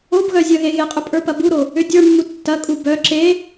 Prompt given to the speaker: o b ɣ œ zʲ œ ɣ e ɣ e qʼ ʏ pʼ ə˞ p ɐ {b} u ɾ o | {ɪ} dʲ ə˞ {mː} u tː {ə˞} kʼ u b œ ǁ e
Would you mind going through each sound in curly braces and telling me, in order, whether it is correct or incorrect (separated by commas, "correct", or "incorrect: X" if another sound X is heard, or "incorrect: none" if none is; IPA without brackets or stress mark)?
correct, incorrect: ʏ, correct, incorrect: ɐ